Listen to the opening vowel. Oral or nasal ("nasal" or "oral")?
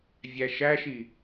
oral